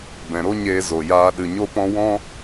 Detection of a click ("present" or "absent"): absent